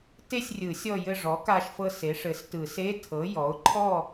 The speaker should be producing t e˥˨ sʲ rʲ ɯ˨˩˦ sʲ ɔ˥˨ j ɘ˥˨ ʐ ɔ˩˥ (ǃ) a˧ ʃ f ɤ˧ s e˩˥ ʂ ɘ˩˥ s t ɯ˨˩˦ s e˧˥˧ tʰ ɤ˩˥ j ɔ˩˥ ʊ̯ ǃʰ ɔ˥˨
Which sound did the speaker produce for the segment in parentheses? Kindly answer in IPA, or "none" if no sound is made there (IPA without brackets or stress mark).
k